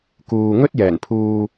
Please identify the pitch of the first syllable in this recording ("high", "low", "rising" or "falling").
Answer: low